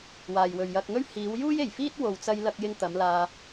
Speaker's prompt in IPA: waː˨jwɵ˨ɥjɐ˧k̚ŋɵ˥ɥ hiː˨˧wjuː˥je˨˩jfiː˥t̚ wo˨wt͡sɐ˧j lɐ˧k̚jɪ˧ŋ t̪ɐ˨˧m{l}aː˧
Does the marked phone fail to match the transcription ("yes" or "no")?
no